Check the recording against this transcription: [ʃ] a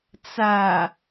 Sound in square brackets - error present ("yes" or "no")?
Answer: yes